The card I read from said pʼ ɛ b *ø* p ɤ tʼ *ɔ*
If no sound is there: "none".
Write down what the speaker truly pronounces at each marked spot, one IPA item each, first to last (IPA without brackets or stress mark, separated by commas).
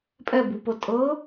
u, ɤ